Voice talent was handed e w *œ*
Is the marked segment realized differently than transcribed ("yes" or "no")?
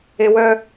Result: no